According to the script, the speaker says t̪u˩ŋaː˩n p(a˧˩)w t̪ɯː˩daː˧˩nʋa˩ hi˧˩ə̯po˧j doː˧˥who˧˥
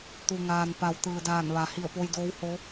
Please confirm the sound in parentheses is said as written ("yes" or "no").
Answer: no